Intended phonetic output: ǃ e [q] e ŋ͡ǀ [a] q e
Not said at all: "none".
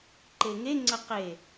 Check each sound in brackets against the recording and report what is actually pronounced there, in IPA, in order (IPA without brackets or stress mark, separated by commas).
ŋ, ə